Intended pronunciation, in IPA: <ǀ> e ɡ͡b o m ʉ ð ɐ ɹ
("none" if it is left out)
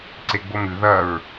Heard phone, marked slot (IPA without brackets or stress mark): ǀ